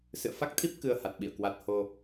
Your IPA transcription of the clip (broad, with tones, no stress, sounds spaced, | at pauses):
s ɨ̰˧˨ ə̯ f a˦˥ k̚ t̪ʰ i˦˥ p̚ k ɨ˧ ə̯ h a˨˩ t̚ ɓ ḭ˧˨ ə̯ k w a˨˩ t̚ h o˧